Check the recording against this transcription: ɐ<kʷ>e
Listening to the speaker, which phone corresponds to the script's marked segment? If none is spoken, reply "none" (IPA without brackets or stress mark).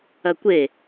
kʷ